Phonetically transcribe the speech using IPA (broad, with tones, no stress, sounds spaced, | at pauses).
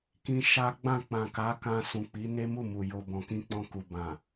k ĩ˧ ʃ a˦ ɡ͡b ã˦˨ k͡p ã˨ k a˨˦ k ã˧ s ũ˨ k͡p i˨˦ n e˦ m u˦˨ m u˨ j o˨ b ɔ̃˨ k ĩ˧ k͡p ɔ̃˧ k u˨ b ã˨